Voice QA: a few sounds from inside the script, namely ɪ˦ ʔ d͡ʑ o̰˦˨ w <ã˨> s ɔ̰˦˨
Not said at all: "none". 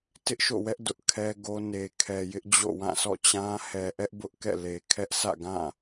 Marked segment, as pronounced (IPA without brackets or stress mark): ã˦˨